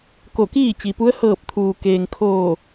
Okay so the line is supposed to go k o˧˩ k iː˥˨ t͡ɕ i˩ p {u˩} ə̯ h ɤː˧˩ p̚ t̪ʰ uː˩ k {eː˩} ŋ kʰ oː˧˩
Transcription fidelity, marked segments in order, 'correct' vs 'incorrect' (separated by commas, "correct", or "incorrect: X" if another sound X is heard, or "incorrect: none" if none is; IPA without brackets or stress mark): incorrect: u˧˥, correct